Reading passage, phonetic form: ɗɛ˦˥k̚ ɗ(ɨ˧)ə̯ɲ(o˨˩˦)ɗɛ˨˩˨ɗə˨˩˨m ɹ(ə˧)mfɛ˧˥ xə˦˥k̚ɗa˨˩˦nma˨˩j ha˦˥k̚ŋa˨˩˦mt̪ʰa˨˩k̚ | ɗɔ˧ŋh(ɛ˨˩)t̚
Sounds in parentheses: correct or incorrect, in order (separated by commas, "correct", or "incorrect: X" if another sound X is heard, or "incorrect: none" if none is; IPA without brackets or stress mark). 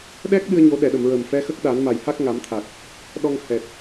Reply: correct, correct, incorrect: ə˨˩, correct